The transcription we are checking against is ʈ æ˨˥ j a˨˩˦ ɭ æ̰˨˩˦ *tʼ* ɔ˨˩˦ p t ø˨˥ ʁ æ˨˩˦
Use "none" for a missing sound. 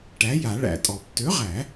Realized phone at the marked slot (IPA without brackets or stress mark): tʼ